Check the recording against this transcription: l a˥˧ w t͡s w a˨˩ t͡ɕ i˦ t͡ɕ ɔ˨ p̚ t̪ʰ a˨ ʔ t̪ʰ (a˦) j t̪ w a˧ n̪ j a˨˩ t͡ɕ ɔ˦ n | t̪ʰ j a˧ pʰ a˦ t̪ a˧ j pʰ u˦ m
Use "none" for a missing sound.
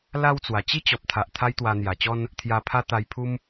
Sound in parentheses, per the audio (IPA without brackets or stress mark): a˦